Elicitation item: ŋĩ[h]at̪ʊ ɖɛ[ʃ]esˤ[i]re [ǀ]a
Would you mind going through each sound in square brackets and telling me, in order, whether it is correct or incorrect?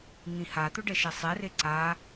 correct, correct, incorrect, correct

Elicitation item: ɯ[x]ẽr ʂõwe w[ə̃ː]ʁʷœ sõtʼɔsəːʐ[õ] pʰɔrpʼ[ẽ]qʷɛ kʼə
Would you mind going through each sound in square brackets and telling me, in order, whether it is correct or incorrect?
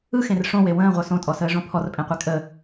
correct, correct, correct, correct

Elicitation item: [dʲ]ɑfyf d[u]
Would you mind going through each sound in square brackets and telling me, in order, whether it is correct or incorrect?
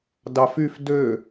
incorrect, incorrect

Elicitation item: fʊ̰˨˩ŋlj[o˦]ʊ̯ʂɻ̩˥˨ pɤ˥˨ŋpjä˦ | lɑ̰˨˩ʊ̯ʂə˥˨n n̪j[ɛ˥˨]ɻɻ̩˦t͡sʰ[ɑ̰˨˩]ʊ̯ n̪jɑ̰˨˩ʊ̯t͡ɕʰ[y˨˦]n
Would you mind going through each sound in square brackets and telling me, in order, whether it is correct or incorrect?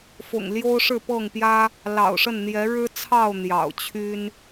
correct, incorrect, incorrect, incorrect

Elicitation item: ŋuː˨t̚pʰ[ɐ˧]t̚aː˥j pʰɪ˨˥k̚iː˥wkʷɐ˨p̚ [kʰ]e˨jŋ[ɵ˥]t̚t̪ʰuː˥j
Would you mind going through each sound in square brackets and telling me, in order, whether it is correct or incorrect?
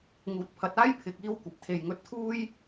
incorrect, incorrect, incorrect

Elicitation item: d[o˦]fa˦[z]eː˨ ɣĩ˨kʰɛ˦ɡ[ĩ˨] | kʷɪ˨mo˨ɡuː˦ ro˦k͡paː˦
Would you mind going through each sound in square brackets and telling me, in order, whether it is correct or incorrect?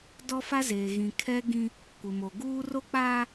incorrect, correct, incorrect

